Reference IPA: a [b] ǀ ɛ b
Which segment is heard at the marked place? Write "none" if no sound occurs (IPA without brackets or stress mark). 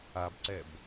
b